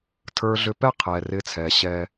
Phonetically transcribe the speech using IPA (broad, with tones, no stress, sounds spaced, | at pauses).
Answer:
tʰ ə˞˨ ɮ ʏ˨ p ɛ˦˨ qʰ ɛː˨ r ɪː˦ t͡sʰ ɛː˨ ɕ ɛː˦